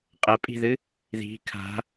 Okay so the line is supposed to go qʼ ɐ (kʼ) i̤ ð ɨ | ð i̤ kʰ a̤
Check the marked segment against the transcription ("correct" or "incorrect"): incorrect